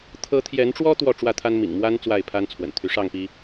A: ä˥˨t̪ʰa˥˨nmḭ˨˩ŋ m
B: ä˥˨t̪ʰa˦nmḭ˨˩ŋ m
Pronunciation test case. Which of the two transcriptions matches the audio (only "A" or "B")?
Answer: B